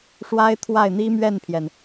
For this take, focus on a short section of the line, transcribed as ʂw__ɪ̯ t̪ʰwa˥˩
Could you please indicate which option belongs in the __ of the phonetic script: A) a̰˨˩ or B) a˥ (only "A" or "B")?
B